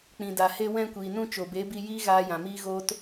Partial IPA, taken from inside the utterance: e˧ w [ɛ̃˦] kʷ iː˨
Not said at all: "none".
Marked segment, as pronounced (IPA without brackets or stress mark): ɛ̃˧